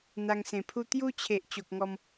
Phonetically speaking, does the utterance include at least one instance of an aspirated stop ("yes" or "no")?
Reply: yes